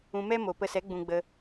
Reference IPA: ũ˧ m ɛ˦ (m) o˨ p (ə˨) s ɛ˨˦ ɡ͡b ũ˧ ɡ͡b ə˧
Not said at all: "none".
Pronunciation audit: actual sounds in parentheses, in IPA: m, ə˧

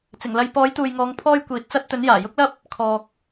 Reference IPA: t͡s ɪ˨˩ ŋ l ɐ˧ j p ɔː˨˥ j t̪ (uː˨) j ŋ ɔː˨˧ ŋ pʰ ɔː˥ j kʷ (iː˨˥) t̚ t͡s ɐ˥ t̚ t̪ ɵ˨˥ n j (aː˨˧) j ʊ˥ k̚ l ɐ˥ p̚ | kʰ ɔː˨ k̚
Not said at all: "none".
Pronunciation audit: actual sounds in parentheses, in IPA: uː˨, iː˨˥, aː˨˩

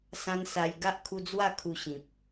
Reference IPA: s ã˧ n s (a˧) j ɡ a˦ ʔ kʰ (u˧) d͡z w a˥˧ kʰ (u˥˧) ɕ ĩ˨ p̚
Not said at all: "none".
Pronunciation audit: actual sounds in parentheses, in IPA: a˧, u˧, u˧

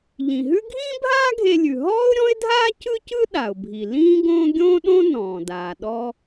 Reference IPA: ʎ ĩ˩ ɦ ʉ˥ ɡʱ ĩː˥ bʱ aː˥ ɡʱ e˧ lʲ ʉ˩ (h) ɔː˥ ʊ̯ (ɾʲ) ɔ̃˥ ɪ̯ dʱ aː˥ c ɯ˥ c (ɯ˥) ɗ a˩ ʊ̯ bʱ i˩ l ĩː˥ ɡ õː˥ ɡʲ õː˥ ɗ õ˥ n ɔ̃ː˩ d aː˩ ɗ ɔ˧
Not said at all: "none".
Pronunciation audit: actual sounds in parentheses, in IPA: ɦ, ɾʲ, ɯ˥

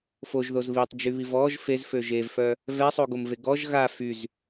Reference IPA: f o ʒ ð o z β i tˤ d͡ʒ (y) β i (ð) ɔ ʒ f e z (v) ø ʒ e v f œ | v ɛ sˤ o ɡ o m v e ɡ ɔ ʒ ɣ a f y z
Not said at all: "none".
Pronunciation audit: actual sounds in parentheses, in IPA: y, v, f

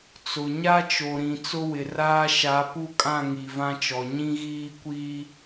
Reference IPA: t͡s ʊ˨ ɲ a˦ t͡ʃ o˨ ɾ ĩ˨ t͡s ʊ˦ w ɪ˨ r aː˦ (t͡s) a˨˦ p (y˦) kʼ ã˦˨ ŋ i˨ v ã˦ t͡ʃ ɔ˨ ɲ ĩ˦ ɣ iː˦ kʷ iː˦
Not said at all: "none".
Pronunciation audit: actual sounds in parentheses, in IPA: ʃ, u˦

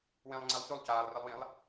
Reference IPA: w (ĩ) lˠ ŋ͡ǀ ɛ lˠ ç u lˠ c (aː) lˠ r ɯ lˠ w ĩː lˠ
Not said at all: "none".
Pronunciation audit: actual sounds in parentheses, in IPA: ĩ, aː

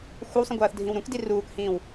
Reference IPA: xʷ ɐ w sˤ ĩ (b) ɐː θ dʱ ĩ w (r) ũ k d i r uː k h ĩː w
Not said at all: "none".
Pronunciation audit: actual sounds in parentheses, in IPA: ɡʷ, ɾ

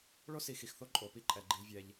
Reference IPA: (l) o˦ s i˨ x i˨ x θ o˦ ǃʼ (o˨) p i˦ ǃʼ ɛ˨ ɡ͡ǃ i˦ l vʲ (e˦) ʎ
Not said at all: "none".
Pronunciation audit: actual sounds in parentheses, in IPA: ɭ, o˨, ɛ˦

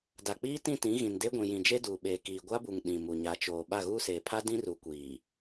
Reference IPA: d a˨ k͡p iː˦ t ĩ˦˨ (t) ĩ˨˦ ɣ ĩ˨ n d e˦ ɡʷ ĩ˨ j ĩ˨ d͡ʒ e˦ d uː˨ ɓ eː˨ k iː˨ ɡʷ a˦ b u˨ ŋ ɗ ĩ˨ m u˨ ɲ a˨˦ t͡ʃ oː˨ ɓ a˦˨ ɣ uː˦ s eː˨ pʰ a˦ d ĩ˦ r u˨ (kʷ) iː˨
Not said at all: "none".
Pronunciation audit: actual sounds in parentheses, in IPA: t, kʷ

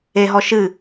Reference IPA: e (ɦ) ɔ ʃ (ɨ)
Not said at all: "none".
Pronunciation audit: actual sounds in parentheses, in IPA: ɦ, ɨ

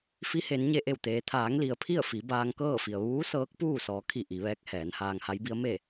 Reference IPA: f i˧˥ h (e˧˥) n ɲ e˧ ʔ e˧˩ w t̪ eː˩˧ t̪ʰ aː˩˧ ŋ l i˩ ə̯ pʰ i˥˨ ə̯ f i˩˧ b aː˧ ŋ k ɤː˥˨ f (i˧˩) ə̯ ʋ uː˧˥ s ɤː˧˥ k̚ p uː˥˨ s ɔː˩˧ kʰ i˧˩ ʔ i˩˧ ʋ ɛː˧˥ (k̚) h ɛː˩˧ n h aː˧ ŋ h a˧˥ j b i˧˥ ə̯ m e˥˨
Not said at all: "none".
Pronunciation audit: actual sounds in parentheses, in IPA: e˩˧, i˩, k̚

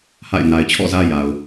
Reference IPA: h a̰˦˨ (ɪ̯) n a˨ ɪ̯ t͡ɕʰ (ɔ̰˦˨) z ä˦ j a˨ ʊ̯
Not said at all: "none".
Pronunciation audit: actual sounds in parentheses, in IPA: ɪ̯, ɔ̰˦˨

